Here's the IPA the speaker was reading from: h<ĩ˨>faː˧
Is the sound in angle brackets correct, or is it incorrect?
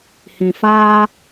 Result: correct